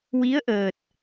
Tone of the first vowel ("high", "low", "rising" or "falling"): rising